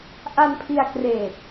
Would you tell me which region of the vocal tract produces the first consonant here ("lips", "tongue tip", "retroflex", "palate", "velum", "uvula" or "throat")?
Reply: throat